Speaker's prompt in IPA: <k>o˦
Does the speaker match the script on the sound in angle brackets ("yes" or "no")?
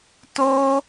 no